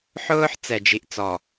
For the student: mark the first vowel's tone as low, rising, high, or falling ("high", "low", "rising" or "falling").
high